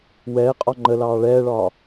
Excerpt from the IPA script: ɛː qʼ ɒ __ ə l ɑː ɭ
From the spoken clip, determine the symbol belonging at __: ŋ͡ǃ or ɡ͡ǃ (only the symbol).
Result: ŋ͡ǃ